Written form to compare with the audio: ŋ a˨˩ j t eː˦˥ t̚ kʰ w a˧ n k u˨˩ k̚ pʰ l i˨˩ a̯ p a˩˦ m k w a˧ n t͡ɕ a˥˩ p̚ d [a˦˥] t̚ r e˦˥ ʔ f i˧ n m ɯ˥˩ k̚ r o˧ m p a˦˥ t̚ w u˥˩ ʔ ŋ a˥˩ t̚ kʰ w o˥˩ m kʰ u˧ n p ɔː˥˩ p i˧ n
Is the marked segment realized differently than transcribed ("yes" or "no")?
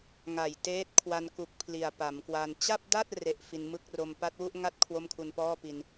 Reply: yes